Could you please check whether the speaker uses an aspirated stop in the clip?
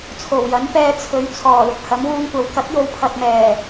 yes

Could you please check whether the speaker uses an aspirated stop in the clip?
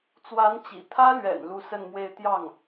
yes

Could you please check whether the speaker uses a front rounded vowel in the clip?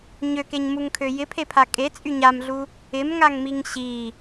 yes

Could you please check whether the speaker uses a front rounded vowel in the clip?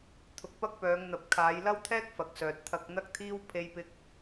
yes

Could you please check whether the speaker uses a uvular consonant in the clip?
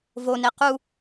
yes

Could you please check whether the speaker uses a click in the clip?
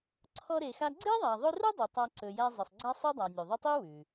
yes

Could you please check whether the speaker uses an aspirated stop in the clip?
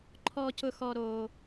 yes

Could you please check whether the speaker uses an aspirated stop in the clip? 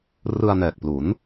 no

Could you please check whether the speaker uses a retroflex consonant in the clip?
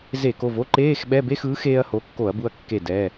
no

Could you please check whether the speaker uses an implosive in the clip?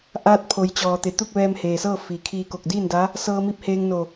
no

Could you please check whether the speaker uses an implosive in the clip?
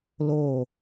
no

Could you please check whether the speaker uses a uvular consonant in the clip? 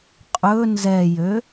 yes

